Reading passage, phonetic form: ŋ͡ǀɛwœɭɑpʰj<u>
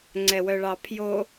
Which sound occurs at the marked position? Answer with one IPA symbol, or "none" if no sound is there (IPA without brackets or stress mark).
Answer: o